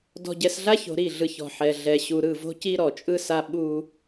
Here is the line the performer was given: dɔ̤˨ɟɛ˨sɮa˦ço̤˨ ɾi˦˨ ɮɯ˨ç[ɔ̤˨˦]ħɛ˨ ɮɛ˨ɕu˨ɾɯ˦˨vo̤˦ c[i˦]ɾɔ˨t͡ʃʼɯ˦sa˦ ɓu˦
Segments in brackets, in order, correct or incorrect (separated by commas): incorrect, correct